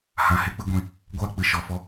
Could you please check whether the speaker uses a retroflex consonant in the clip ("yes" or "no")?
no